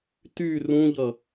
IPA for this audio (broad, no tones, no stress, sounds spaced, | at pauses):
t y r ũ ʎ ʌ